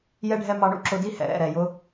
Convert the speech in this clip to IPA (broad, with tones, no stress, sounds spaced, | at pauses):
j ɛ˦ ɖʱ ɛ˦ m ɑ˧ ɳ ṵ˧ ǁ ʊ˧ d i˦ h ɛ̰˨ ɾ ɛ̰˦˨ ɾ ɛ˨ j ʊ˧